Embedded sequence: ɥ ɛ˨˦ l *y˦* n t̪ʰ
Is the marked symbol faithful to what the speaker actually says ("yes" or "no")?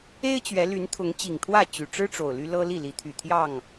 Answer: no